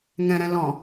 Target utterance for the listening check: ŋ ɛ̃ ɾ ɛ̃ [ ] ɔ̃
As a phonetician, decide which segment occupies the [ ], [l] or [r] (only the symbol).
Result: l